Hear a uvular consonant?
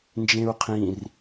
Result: yes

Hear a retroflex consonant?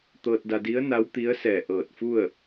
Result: no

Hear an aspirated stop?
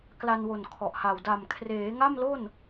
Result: yes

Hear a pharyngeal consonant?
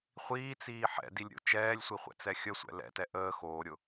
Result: yes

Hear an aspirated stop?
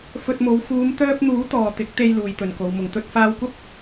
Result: no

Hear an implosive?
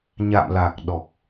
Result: yes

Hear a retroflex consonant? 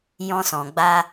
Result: no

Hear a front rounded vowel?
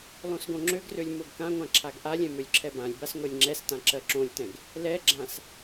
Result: yes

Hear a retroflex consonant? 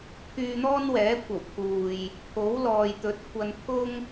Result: no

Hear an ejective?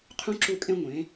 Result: yes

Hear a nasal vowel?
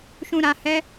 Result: yes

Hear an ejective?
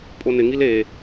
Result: yes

